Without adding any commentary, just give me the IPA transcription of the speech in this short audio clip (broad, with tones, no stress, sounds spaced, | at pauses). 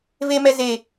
v e˦ m ɛ˦ z e˦